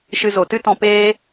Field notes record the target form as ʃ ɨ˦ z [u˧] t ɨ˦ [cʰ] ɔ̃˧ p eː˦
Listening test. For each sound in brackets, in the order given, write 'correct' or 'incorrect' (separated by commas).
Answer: incorrect, incorrect